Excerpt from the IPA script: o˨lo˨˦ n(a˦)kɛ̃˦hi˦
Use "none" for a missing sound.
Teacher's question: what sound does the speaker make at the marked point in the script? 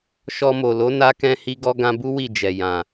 a˦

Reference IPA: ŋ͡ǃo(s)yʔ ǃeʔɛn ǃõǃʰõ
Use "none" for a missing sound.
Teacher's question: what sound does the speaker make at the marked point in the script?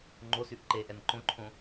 s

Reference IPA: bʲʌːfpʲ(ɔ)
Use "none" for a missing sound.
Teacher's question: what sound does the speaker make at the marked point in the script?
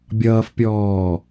ɔː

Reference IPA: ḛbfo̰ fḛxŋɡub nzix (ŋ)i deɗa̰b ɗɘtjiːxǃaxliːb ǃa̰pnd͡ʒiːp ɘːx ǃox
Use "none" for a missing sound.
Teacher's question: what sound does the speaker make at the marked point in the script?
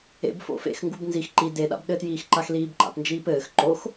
ǃ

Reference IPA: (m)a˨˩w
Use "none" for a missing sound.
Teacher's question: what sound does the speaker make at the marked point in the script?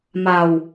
m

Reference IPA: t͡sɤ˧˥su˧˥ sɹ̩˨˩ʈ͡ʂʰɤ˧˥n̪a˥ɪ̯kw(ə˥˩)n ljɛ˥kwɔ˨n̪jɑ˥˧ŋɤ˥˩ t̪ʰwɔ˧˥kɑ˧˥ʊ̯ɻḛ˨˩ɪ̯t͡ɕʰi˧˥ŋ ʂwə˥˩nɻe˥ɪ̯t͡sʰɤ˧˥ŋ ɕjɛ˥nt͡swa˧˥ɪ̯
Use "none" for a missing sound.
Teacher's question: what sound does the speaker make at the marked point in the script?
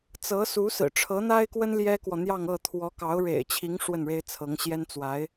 ə˥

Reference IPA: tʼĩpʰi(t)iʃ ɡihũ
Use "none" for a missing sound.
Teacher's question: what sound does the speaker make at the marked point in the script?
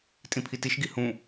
t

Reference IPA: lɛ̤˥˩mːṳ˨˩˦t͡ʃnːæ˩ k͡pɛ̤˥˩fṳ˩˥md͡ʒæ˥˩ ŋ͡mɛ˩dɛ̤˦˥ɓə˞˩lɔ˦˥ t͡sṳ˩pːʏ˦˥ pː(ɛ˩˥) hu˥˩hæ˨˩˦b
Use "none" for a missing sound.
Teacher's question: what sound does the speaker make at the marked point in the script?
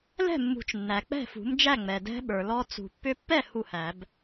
ɛ˥˩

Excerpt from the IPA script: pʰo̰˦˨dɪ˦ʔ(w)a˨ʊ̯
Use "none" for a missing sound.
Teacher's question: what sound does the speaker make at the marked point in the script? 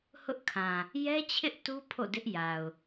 j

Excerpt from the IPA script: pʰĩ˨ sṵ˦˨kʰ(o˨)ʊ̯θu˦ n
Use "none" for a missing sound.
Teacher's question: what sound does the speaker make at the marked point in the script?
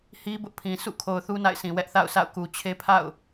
o˨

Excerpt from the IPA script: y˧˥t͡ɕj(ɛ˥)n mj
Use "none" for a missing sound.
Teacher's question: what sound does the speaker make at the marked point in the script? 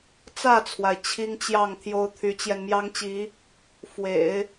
ɛ˧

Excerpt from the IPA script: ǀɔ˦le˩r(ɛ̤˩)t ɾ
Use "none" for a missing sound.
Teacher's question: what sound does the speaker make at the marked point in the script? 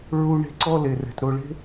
ɛ̤˩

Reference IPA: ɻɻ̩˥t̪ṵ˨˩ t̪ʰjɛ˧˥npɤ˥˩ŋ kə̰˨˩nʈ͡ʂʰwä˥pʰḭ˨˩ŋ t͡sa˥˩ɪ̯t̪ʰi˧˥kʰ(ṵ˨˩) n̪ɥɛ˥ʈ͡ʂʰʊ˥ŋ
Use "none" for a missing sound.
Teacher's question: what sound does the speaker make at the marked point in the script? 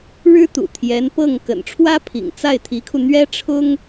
u˧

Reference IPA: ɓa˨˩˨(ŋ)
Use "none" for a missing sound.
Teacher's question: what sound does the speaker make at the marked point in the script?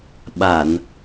n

